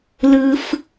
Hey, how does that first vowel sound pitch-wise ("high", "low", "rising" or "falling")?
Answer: low